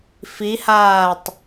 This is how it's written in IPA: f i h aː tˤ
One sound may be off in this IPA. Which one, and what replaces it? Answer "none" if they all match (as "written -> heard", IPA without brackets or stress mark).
none